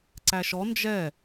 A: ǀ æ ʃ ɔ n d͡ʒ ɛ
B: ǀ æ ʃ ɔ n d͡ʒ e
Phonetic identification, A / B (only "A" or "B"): A